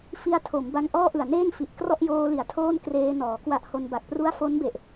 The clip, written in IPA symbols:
fi˧a̯ tʰo˩˦mba˧ŋ ʔɔː˥˩ ʔɯ˨˩a̯neː˥˩ŋfi˨˩ʔ krɔ˥˩ʔjoː˧li˩˦a̯ tʰoː˥˩nkreː˧nɔː˩˦ kwa˦˥ʔho˧nba˨˩k̚pru˥˩a̯ fo˦˥nbe˨˩ʔ

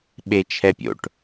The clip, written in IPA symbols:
ɓet͡ʃʰɛpʲo̰ʈ

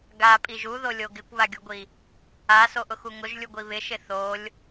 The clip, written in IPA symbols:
ɡapʼiʒ uðolʲo ɡɪkʷβaɡʲuɡʷi | asoʔʊxu ŋʊʒlʲuɡʷi βɪʃɪ θolʲ

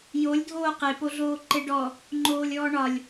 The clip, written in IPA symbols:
jolʲ dʱoːqe poɮoːǃeɖɔ | ŋ͡ǃoːlʲɔːɳɒlʲ

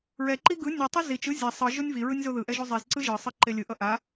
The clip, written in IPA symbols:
ɹɛǃi ɡɯ nʲutˤe zit͡ʃɯ zʲa sˤɯ ʒonʲviɹɯnʲ zoðɯʔɛ ʒuzˤizǀɯ ʒɯsˤɯ ǃelʲɯʔʌ ʔa

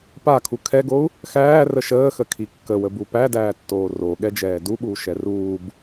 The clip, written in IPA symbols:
pakʰu kʰɛɡou̯ | xæːrə ʃəːxəkʰi kːəwəbu pædæːtːoː roɠɛd͡ʒɛː duɓuːʃɛ ruːb

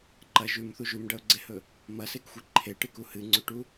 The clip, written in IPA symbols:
ǃɐ ʒʉmθu ʒʉmɖɐʊ̯ɡ͡ǀehɵ | mɐsekxʷe ǃʰeʈɨku hɨŋ͡ǀʉʈu

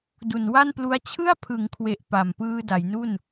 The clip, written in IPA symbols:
du˨˩nwa˥˩nplu˦˥a̯ t͡ɕʰɯ˥˩a̯pʰɯ˩˦ŋkʰwe˨˩ʔ pa˨˩m pɯː˧da˩˦jnu˥˩n

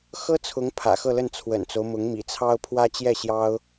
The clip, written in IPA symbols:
xɤ˥t͡sʰʊ˧˥ŋ pʰä̰˨˩xɤ˥˧lə˥˩n t͡sʰwə̰˨˩nt͡so˦ʊ̯mʊ˧˥ŋ mḭ˨˩t͡sʰɑ˥ʊ̯ pʰwä˥t͡ɕjɛ˥˩ɕjɑ˥ʊ̯

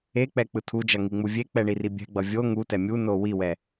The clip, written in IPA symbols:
ek͡pɛ k͡pɯtʰud͡ʒʌ ŋiŋ͡muvʲek͡pɛ ɳiribʲɛ̤ɡ͡bʌ vʲo ŋutɛ mʲuno wiwɛ

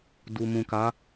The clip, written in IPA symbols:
du˨mũ˨ka˨˦

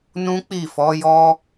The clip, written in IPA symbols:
nũ˦k͡pi˦˨ fɔ˨˦jɔ˦

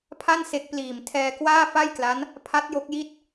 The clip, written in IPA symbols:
pʰa˥˩n se˦˥k̚ pliː˨˩m tʰɛː˧kwaː˥˩fa˥˩jkla˦˥n | pʰa˦˥t̚jo˦˥k̚ji˥˩t̚

